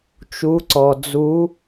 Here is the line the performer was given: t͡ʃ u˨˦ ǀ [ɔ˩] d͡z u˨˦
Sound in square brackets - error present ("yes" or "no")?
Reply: no